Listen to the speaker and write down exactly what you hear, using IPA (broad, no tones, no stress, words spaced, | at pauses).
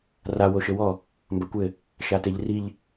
ra woʃɘwɔ | mbɐkʷɘ | ʃateʎriʎ